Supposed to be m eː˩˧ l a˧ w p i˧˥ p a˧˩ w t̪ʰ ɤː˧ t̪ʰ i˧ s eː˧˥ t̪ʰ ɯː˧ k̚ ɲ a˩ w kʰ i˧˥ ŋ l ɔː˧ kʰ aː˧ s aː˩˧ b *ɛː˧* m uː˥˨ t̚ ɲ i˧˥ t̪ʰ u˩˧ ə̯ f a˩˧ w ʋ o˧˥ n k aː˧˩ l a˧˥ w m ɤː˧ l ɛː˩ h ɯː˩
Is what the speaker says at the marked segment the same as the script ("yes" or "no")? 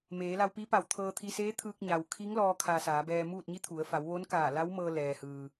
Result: yes